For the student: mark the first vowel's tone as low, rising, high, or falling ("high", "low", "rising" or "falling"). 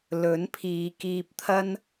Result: rising